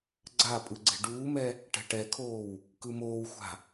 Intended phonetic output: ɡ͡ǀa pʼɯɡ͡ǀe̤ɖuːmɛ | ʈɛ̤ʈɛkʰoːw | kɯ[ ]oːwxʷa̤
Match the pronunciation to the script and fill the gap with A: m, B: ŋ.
A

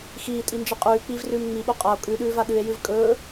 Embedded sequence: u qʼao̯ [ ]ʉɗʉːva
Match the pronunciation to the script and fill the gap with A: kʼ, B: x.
A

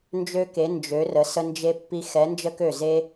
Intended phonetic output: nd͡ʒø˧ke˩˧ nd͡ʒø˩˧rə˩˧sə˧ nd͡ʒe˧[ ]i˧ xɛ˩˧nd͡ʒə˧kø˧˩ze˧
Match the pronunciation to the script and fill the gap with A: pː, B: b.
A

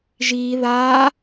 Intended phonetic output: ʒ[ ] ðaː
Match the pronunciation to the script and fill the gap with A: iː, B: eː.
A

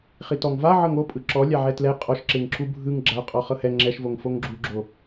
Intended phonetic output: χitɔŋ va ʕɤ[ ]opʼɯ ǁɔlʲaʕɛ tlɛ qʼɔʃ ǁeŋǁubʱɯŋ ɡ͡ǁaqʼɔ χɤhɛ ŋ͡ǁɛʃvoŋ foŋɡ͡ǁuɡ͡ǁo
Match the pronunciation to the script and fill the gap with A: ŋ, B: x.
A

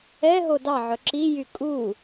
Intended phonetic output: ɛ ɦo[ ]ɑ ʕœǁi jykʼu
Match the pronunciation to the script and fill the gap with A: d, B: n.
A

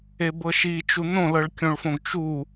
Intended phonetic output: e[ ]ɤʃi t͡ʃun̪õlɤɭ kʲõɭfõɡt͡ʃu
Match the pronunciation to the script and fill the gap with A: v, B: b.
B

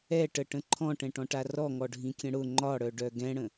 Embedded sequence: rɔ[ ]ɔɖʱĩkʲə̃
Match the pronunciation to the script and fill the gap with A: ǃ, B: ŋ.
B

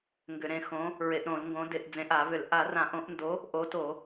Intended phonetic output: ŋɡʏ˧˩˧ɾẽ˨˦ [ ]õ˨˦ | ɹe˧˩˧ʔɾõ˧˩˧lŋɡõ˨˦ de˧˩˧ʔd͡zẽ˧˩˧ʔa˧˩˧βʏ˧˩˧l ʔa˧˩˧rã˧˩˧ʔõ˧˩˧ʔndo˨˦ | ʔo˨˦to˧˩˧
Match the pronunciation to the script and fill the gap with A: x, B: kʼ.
A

